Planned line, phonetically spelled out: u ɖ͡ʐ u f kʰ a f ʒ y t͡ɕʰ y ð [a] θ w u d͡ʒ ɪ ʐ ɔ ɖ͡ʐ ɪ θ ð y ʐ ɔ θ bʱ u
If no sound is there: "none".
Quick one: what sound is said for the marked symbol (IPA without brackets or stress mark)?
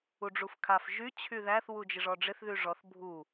æ